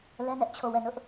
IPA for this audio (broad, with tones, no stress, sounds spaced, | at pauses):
l ɛ˦ n ɛ˦ ʔ t͡ɕʰ o˦˨ w ɛ˦˨ n ʊ˦ ʔ